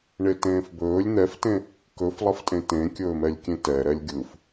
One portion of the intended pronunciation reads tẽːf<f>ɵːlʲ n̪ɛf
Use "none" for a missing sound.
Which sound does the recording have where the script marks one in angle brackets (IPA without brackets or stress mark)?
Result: b